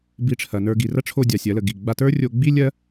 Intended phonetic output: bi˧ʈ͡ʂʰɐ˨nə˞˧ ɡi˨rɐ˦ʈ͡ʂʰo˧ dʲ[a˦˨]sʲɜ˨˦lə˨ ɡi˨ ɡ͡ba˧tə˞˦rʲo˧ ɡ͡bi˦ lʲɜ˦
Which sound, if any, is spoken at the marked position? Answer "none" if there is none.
a˨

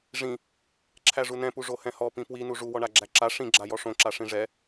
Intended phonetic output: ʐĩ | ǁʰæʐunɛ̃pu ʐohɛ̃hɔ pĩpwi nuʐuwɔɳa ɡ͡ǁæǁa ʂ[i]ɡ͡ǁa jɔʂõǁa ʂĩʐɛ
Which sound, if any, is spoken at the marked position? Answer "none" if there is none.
ĩ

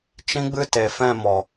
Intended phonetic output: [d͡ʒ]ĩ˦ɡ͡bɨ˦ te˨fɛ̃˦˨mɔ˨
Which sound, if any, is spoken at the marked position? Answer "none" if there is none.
t͡ʃ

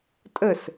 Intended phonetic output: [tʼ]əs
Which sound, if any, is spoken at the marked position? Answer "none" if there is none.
tʼ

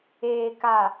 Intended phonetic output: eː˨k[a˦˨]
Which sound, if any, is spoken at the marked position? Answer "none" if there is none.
a˨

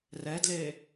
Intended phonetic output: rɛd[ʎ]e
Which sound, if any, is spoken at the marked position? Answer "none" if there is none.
l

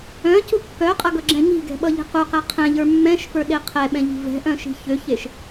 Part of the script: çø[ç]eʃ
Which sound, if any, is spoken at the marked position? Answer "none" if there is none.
ç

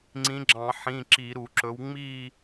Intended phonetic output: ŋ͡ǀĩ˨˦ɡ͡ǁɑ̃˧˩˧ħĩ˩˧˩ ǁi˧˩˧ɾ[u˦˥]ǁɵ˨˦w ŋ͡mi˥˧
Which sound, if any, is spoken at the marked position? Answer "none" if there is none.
u˧˩˧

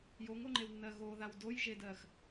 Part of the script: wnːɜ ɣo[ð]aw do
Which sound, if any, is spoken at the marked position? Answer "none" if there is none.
ð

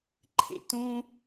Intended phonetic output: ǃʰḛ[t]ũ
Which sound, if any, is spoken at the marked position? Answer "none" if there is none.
t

